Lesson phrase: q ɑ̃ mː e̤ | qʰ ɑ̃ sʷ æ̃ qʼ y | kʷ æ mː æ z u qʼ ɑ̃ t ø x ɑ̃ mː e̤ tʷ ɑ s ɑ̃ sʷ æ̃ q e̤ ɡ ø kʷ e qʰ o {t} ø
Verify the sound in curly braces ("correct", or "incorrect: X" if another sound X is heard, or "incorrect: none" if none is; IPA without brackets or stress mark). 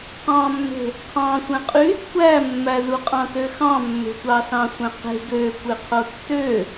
incorrect: tː